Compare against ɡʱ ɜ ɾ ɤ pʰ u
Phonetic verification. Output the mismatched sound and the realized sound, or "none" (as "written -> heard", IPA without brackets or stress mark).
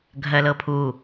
ɾ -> l